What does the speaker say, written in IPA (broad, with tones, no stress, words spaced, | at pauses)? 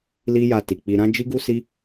li˦ja˧ti˨k͡pi˧ ɾã˦ d͡ʒi˦ɡu˦si˦